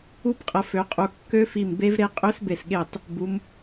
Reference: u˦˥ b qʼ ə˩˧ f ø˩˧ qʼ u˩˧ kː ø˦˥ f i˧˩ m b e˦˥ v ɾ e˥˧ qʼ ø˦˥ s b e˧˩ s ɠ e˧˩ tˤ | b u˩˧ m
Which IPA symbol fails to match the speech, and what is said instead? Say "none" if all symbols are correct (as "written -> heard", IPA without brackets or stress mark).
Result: none